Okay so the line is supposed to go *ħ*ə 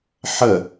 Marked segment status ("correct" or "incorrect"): correct